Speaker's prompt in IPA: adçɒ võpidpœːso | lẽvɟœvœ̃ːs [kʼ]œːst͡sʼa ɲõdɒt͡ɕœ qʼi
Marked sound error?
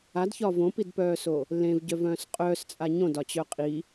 yes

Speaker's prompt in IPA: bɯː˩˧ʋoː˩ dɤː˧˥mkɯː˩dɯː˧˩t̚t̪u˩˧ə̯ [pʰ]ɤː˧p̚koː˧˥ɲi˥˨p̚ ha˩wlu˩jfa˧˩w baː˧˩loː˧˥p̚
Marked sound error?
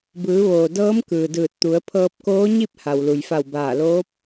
no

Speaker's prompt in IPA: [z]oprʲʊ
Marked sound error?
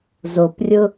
no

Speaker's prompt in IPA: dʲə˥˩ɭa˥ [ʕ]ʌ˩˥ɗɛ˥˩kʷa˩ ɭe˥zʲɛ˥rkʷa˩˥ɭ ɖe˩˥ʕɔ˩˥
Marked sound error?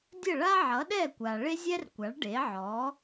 no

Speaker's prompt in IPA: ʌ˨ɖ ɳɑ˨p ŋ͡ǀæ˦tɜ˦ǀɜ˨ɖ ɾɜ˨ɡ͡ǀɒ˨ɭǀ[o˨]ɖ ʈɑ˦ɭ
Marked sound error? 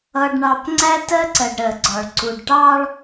yes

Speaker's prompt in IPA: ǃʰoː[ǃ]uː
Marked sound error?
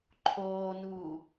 yes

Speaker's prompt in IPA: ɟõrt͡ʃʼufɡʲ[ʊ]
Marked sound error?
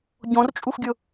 no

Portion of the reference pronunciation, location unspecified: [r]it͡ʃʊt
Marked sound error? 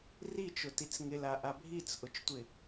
no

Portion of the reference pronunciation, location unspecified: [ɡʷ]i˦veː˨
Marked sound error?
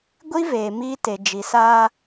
no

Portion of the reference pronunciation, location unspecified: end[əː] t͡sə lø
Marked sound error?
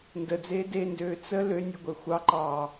yes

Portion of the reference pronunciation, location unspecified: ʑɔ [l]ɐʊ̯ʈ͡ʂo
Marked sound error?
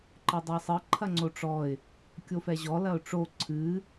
no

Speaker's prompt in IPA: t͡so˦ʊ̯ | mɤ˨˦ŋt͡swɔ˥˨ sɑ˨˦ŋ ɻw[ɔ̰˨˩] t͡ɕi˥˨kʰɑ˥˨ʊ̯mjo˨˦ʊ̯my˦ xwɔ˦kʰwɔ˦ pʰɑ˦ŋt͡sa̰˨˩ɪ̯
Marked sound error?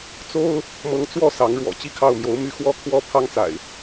no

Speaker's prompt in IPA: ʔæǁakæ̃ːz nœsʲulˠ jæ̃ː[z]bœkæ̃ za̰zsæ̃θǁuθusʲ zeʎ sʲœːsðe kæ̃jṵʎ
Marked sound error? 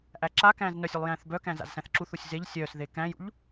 yes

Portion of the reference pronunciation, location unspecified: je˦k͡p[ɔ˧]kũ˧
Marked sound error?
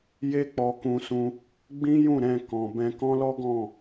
no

